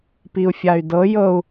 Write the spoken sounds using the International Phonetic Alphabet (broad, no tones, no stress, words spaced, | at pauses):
piu̯fʲay̯dɤ jɤu̯